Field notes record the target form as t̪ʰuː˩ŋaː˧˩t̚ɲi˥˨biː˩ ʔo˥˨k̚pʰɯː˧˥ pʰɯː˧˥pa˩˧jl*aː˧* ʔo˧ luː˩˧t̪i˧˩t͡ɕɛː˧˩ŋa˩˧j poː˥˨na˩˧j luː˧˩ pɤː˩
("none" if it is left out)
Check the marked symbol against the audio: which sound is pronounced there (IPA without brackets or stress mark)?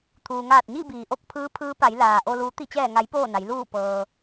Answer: aː˩